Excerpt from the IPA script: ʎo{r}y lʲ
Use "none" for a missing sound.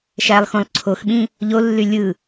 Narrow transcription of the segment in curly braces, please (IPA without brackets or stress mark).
lː